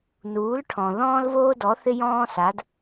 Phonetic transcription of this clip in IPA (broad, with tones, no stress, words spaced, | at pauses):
nuː˨˦lʈʰɔ̃˨ ðɔ̃ː˦lvoː˦dɔ˨˦θɪ˦ jɔ̃ː˦sa˨˦d